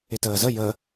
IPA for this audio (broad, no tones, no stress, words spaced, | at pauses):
ɪtəːzə jə